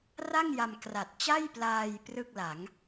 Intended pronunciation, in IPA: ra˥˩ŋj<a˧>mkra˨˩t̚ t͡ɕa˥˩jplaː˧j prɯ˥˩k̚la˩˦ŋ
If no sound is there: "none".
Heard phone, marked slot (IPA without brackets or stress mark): a˧